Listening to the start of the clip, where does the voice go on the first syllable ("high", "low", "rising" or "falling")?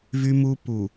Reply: high